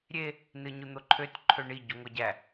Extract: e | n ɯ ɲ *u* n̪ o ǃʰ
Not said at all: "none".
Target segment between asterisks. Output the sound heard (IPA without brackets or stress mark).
u